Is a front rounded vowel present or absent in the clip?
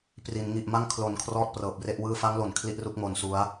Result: absent